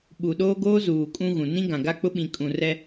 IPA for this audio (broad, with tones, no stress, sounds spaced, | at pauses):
ɓ u˨ ɗ oː˦ ɡ oː˦ z uː˨ kʼ ũ˦ ɣ ũ˨ n ĩ˦ ɡ ã˨ ɡ a˦ k͡p ʊ˦ ɓ ĩ˨ kʼ ũ˨ r ɛ˦